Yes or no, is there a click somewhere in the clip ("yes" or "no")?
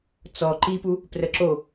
yes